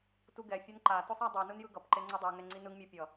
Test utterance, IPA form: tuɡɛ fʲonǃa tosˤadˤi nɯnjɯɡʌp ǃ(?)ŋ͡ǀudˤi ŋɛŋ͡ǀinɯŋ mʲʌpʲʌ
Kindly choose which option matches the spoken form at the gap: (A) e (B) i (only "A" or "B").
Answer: A